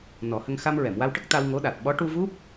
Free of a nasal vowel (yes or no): yes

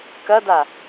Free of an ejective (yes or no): yes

